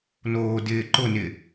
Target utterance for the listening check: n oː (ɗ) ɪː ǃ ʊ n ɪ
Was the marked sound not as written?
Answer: yes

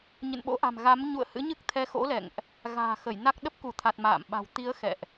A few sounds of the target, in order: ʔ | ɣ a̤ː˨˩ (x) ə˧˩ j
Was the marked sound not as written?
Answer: no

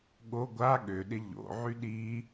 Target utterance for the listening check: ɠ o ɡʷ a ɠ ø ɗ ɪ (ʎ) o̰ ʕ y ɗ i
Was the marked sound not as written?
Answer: no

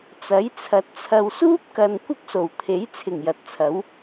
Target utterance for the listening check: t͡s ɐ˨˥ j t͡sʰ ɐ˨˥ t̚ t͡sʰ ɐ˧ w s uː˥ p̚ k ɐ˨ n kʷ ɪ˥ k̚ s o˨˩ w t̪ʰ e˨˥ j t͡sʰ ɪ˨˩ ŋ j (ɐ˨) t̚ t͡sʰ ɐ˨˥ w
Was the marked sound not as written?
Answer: no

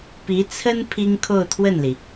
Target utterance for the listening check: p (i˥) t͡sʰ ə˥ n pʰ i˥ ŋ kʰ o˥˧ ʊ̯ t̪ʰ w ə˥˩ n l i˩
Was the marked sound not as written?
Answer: yes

